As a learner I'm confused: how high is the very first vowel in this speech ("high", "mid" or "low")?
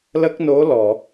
mid